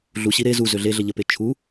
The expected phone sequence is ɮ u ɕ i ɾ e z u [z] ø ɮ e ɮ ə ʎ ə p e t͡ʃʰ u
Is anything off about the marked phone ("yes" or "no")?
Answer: no